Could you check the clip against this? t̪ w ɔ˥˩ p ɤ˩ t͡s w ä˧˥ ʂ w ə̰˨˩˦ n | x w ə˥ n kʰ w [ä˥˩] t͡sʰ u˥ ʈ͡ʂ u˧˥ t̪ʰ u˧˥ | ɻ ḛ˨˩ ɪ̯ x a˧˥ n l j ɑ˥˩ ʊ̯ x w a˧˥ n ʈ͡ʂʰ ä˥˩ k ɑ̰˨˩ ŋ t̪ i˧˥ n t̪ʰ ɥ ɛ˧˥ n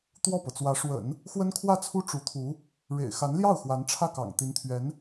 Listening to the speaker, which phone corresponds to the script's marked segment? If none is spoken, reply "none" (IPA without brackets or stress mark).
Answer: ä˥˩